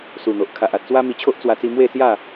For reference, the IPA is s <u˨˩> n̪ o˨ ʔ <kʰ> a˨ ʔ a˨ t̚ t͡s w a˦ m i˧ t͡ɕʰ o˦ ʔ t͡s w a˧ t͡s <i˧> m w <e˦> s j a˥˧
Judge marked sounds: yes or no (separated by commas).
yes, yes, yes, no